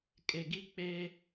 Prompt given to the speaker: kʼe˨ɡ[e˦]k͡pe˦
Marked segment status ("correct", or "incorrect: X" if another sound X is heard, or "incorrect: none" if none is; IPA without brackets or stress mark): incorrect: i˦